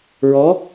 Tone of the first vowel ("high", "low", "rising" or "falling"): rising